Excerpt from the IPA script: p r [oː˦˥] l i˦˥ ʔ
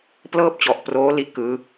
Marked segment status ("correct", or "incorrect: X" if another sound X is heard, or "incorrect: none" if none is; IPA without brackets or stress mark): correct